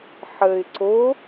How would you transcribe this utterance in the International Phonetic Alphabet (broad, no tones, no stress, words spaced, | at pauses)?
ħəɪ̯ ǀo